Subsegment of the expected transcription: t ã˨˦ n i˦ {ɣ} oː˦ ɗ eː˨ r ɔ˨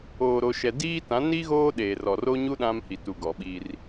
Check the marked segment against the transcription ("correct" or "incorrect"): correct